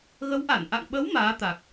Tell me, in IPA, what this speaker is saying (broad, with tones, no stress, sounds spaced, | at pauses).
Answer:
ɣ ə˨˦ w ʔ a˧˩ n ʔ a̰˧˨ ŋ ɓ ə˨˦ w m aː˨˦ t̪ a˨˩ k̚